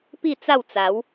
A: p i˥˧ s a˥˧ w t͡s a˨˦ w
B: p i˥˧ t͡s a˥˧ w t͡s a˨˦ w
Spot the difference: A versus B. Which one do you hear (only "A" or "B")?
B